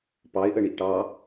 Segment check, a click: absent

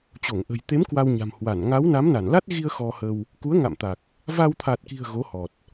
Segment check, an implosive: absent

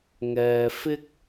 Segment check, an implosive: absent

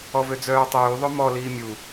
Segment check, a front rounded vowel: present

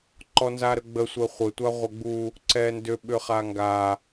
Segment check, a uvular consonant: present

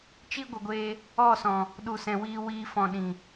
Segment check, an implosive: present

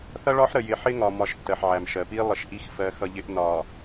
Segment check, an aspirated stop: absent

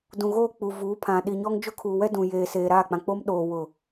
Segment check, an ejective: absent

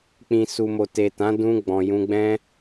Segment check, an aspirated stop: absent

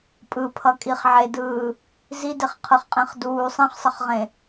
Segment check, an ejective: present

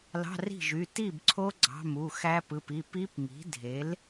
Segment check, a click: present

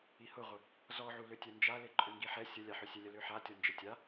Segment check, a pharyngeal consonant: present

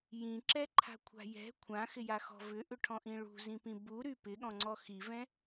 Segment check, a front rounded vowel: present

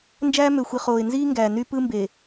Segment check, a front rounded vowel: present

